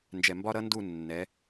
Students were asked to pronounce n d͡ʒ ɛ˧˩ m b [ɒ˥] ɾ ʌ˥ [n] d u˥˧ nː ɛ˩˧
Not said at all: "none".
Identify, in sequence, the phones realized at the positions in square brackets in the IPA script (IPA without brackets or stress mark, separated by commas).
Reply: ɒ˥, n